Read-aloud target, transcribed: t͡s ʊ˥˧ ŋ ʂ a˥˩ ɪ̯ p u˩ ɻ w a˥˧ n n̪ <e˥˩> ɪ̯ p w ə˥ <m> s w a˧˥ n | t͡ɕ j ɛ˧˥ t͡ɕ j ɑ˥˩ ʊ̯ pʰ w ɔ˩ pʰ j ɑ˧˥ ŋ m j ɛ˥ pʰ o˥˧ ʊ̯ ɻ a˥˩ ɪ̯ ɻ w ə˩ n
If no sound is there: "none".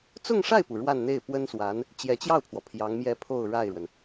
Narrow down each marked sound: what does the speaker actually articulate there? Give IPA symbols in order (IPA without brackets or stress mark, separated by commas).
e˥˩, n